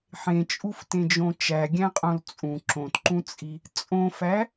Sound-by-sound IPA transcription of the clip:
ħ ẽ t͡ʃʼ u f t ẽ d͡ʒ õ t͡ʃ æ ɡʲ æ̃ qʼ õ l t͡sʼ ũ ǁ õ t ǃ ũ t͡sʼ i | t͡sʼ õ f æ

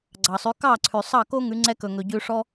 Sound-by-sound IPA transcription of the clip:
ɡ͡ǀ ɑ˩ sˤ ʉ˩˥ k ɑ˥˩ ǀʰ ʉ˩ sˤ ɑ˥˩ k o˥ ŋ ʉ˩˥ ŋ͡ǀ ɛ˥ k ɵ˩ ŋ ɵ˩ ɟ ʉ˧ ʂ ɔ˥

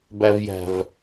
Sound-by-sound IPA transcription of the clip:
b æ v j æ̤ v

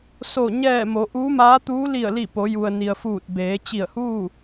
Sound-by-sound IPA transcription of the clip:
s o˧˩ ɲ ɛː˧˩ m o˩˧ ʔ uː˧˥ m aː˧˥ t̪ uː˧˥ l i˧˩ ə̯ l i˧˩ p o˩˧ j u˩ ə̯ n i˩ ə̯ f uː˧˩ t̚ b eː˩˧ t͡ɕ i˧˩ ə̯ h uː˥˨

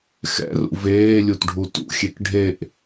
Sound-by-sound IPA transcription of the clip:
x ɛ̰ r ṵ v eː lʲ u t ɖʱ u t ṵ xʲ e k ɖʱ e ʔ

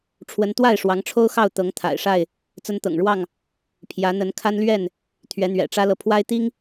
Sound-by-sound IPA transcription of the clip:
ʈ͡ʂʰ w ə˨˦ n t̪ w a˥˨ ɪ̯ ʂ w ɑ˨˦ ŋ ʈ͡ʂʰ o˦ ʊ̯ x ɑ˥˨ ʊ̯ t̪ ɤ˨˦ ŋ t̪ʰ a̰˨˩ ɪ̯ ʂ a˥˨ ɪ̯ | t͡s ə˦ n t̪ ɤ̰˨˩ ŋ ɻ w ɑ˥˨ ŋ | pʰ j ä˨˦ n̪ ə˨˦ n kʰ a˦ n l ɥ ɛ˥˨ n | t̪ʰ ɥ ɛ˨˦ n̪ ɥ ɛ̰˨˩ ʈ͡ʂ ä˦ l ɤ˨ pʰ w a˦ ɪ̯ t̪ i˦ ŋ

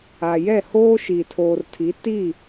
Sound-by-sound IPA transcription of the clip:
a˨ j ɛ˦˨ h oː˦ ʃ i˨ tʰ oː˨ r tʰ i˨˦ t i˦˨

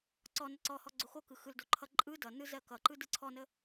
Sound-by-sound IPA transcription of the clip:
ǀ ɔ n ʌ ǀ ɔ h ɔ ɡ͡ǀ o x o k ɯ x ɯ l d o ǃʰ ʌ ǃʼ ɯ d ʌ n ɯ z ɜ k ʌ ǃ ɯ d ɯ ǀʰ ɔ n ə

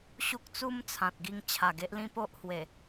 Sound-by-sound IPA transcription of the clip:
ɕ u˦ k̚ t͡s u˦ m t͡sʰ ã˨ t̚ ɡ i˧ ŋ t͡ɕʰ a˨˩ ɡ e˦ ʔ l ĩ˦ p o˦ ʔ h w e˨˩

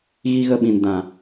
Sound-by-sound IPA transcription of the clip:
ɣ i˧ ɣ ə˧ ɓ ĩ˨ n d ã˨

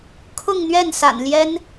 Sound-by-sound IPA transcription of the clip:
kʰ ʊ˥˧ ŋ n̪ ɥ ɛ˥˩ n s a̰˨˩ n l j ɛ˥ n

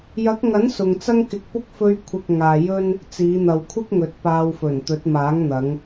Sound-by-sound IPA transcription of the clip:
j ɐ˨˥ k̚ ŋ ɐ˨˥ n s ʊ˨ ŋ t͡s ɐ˥ ŋ k ɪ˧ k̚ p ʊ˥ k̚ f ɵ˧ ɥ kʷʰ ɪ˨ k̚ ŋ aː˨ j ɵ˥ n | t͡s iː˨˧ n̪ ɐ˨ w kʷʰ ɪ˥ k̚ ŋ ɵ˨˥ t̚ p aː˧ w f ɵ˨˩ n t̪ ɵ˨˥ t̚ m aː˨˥ ŋ n̪ ɐ˨˧ ŋ

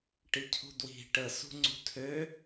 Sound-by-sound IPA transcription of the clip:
ʈ i cʰ ṳ d w i̤ ʈ ə s ṳ ŋ͡ǀ ṳ tʰ ø

